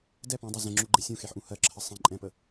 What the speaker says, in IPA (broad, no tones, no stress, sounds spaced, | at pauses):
d ɛ p ɔ̃ dˤ ɛ z ɛ̃ ŋ͡ǁ u ɡ͡ǃ e sʲ ũ x e ħ ʔ ũ h ɜ ǁʰ ə sˤ ẽ ǃʼ ɛ̃ p ə